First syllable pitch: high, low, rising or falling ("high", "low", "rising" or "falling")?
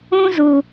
high